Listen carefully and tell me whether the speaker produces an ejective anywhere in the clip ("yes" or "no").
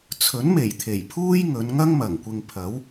no